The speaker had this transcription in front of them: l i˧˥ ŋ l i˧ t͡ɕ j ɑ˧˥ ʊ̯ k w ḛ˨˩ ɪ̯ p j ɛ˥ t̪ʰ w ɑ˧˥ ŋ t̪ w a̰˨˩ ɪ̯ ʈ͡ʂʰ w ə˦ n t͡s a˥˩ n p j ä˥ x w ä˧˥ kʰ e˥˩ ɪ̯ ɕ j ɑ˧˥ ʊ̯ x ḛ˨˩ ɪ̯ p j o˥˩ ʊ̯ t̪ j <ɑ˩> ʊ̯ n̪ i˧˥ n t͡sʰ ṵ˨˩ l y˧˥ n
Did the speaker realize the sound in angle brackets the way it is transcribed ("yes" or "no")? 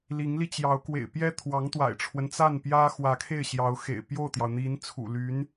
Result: yes